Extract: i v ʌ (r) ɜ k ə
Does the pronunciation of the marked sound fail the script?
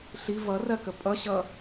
no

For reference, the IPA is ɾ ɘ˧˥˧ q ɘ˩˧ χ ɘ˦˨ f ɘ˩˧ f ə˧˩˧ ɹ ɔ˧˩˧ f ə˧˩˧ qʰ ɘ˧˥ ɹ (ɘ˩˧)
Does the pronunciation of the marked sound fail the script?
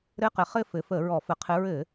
yes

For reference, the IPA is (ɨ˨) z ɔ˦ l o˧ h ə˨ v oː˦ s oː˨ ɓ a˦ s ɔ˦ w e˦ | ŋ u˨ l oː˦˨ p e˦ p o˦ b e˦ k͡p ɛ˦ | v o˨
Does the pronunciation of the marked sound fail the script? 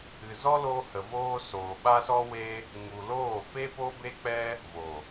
no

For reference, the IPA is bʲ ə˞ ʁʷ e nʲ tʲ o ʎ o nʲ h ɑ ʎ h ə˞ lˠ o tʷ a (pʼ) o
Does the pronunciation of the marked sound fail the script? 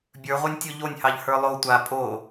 no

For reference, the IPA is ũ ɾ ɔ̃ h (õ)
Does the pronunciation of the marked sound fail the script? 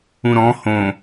no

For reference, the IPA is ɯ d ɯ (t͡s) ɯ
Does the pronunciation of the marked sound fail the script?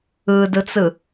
no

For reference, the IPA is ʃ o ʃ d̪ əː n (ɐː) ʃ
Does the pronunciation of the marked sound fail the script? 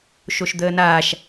yes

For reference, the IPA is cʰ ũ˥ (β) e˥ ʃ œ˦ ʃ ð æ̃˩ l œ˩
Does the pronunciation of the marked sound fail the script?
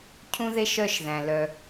yes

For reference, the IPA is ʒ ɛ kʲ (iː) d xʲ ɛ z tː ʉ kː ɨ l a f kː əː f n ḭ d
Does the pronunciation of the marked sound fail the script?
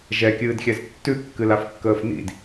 yes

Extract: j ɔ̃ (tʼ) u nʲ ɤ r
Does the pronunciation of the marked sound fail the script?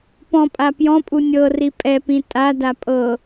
yes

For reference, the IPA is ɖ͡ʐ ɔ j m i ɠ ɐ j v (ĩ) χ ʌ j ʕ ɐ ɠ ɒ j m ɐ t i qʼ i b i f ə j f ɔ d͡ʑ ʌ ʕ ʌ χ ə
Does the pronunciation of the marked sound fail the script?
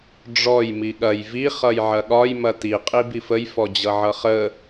yes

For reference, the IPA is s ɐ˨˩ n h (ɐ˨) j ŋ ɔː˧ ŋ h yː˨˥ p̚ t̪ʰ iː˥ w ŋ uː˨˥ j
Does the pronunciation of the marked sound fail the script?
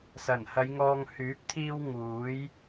yes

